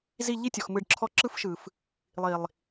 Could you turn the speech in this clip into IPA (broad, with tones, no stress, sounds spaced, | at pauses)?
z i˦˨ ʎ i˦ tʲ ɔ˨ x m ɯ˧ ɖ ǁʰ ɔ˦ ǁ ɯ˦ f ʃ ɯ˨ f | lˠ i˨ lˠ